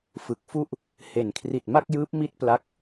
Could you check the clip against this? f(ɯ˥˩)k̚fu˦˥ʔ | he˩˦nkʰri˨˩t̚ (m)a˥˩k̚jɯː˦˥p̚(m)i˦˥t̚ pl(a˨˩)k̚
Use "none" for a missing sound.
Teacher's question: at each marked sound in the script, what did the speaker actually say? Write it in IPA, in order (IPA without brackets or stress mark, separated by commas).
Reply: ɯ˨˩, m, m, a˦˥